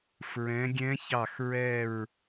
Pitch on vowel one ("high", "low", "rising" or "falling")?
rising